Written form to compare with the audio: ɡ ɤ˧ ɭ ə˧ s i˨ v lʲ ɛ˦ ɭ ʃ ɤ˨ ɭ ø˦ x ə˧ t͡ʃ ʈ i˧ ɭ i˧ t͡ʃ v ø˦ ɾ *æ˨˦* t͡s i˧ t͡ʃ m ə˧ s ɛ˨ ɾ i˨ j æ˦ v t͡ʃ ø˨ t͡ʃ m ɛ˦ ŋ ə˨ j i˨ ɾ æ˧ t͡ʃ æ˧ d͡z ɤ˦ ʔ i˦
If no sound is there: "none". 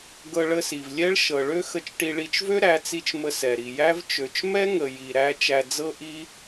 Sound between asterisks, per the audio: æ˨˦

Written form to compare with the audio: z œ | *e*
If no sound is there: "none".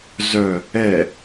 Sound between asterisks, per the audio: ɛ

